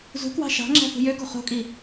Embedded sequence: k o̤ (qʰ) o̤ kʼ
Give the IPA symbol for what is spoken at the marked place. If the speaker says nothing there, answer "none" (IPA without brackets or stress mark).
χ